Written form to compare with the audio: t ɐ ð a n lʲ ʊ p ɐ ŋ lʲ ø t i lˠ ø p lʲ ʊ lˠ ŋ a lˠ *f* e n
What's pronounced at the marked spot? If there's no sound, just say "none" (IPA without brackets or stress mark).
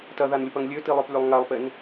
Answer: p